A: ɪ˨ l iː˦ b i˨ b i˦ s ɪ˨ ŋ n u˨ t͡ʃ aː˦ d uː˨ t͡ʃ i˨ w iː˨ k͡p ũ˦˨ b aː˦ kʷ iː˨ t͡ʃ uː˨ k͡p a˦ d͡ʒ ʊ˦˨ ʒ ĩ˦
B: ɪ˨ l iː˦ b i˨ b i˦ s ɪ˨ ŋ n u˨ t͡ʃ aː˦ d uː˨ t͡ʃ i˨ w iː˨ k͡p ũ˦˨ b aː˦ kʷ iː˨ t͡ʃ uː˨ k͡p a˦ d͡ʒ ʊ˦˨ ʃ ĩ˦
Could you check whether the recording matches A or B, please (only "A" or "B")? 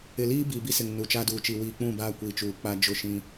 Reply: B